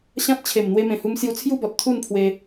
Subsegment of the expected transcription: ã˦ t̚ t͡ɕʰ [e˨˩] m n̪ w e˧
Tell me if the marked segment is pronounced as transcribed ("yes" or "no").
yes